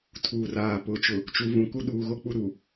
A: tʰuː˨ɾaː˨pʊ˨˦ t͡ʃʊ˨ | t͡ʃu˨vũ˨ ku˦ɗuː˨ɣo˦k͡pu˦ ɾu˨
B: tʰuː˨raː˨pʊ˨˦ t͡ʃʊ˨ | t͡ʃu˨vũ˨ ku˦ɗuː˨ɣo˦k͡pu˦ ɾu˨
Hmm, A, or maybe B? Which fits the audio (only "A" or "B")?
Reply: B